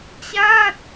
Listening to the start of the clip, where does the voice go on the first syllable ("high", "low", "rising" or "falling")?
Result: falling